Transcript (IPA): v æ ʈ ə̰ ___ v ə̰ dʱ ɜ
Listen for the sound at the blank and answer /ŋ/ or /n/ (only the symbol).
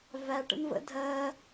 n